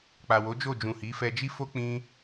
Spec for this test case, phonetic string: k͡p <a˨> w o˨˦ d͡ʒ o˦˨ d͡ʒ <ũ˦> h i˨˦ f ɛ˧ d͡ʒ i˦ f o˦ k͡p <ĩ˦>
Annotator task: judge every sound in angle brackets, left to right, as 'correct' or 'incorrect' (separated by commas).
correct, incorrect, correct